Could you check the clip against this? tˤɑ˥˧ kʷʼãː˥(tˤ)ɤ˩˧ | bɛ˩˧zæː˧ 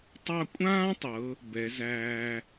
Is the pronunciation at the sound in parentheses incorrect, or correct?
correct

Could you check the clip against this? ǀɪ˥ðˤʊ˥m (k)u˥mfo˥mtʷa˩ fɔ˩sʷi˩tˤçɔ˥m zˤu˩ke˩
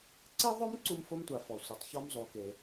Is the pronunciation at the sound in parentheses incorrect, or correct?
incorrect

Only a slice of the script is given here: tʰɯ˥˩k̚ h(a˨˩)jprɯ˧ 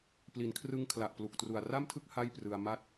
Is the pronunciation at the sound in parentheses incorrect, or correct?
incorrect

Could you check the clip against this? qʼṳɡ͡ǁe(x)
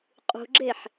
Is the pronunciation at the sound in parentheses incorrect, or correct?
incorrect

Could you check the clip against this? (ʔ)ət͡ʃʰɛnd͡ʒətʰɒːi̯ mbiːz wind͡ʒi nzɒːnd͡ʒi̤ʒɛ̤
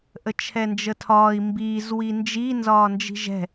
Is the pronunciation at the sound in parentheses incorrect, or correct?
correct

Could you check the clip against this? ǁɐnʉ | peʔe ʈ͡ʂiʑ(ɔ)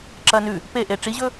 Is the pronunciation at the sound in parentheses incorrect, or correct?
incorrect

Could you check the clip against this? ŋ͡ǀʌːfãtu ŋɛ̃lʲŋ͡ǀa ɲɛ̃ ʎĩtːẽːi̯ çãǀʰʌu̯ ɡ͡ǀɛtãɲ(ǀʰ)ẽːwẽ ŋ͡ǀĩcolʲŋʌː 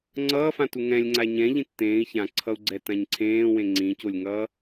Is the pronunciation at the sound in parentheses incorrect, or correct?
correct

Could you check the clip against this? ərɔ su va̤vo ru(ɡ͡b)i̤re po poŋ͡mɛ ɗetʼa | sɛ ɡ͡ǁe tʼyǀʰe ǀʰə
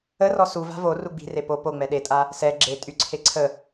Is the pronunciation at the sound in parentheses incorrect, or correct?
correct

